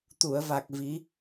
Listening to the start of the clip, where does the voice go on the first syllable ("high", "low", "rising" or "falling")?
low